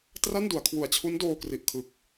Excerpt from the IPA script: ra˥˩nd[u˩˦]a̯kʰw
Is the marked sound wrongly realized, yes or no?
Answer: no